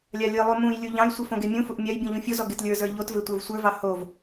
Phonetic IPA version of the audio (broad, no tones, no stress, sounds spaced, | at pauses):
lʲ a lʲ ɨ lˠ u m ũ j lʲ u ʎ ɑ̃ j sʷ ɨ f õ ɡ e mʲ ũ f u ʔ mʲ a j bʲ ũ ʎ ũ fʲ o z ɔ ɡ e t lʲ ə˞ z ə˞ ʎ o t v e tʷ ə˞ v sʷ ə˞ v ɑ h o v